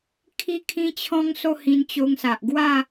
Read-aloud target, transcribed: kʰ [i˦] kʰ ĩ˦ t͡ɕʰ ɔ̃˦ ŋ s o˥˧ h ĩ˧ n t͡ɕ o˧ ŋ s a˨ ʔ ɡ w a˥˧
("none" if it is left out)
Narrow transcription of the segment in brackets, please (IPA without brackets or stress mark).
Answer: i˥˧